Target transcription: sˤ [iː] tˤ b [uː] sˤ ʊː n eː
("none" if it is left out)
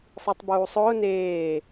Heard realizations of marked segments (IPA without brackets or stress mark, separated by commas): i, uː